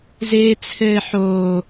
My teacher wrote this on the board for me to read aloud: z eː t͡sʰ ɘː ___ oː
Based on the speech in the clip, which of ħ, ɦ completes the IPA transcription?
ħ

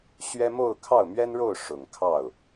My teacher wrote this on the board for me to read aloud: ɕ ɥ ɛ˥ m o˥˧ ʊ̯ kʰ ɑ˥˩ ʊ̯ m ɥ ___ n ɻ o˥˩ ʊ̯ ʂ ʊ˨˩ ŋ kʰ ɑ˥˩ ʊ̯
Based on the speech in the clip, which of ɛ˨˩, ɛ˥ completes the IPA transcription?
ɛ˥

